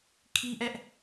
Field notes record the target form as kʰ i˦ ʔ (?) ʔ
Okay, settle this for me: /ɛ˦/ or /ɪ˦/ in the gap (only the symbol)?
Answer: ɛ˦